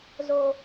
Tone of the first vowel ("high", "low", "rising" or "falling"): high